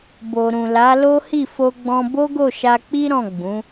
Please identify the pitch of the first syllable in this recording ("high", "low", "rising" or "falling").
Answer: low